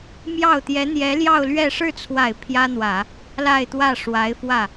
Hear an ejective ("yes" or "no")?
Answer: no